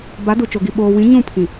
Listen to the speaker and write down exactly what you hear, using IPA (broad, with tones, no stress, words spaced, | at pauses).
ba˨˦ du˨ t͡ʃo˨ɡi˨ ɓoː˨wĩ˨˦ ɲũ˦˨pʰĩ˨